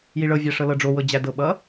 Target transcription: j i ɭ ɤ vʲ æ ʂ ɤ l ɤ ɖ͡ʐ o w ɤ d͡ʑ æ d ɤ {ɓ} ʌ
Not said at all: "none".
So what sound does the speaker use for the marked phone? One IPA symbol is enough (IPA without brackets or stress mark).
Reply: ɓ